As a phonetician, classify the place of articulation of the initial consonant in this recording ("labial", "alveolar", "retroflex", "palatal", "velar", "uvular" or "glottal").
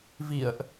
labial